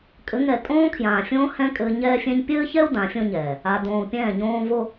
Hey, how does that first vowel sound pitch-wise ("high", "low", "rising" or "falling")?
rising